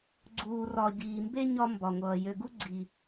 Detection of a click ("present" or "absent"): present